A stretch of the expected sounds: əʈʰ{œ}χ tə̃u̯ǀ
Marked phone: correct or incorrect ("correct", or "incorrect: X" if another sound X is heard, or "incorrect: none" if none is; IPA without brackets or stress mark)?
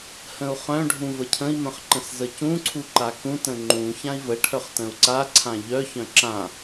correct